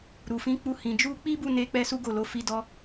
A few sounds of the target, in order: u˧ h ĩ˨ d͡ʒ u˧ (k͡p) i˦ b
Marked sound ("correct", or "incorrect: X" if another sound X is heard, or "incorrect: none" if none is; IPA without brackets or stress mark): correct